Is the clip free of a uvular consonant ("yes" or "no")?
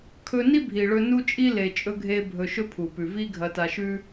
yes